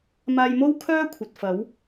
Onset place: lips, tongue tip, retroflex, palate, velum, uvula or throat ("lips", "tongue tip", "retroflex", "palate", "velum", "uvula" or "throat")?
lips